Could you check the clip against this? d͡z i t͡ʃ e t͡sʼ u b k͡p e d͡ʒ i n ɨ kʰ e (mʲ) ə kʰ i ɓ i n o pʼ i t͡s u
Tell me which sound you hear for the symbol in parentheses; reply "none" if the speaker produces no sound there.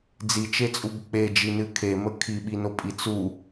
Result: m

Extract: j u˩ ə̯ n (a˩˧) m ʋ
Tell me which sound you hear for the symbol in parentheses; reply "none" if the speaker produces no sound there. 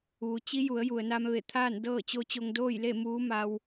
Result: a˧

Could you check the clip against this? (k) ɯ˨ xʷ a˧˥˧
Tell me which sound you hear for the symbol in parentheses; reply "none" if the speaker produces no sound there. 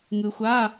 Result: ŋ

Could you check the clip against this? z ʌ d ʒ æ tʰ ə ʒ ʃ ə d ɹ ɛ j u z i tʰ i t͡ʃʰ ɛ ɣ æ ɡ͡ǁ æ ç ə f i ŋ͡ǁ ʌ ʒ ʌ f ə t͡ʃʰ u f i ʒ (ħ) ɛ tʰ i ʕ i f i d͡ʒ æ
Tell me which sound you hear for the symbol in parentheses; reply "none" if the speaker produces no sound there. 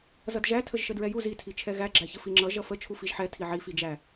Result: ħ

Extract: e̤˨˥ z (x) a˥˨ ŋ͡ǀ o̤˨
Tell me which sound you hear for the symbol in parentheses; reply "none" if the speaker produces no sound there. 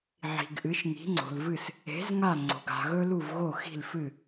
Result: ŋ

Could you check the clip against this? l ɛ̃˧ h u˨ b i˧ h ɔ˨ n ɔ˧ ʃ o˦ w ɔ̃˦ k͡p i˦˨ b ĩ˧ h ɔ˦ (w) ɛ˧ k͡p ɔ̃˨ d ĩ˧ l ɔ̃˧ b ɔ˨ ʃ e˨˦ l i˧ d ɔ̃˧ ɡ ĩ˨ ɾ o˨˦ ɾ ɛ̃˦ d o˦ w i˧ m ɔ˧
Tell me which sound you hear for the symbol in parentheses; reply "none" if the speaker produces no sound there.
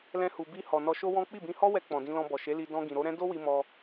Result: w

